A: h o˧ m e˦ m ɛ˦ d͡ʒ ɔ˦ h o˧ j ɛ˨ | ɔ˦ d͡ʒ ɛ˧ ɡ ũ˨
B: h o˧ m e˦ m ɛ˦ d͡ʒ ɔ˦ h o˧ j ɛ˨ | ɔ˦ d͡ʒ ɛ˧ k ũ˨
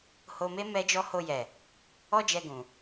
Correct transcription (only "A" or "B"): A